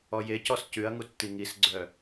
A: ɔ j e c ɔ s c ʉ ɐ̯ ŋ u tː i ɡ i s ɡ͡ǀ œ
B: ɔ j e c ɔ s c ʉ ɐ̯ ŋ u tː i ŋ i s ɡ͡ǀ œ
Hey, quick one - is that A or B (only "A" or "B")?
B